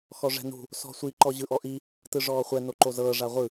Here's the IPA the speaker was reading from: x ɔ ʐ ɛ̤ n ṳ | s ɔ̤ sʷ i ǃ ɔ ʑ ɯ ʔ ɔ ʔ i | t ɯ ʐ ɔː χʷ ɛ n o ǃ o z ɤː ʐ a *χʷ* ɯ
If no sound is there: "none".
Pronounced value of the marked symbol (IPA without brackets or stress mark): ʁʷ